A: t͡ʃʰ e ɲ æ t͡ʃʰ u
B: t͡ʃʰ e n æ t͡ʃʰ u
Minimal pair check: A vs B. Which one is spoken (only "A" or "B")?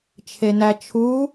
B